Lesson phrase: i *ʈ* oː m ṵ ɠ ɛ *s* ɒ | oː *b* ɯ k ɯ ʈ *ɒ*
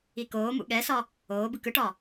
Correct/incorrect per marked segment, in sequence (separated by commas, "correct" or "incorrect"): incorrect, correct, correct, correct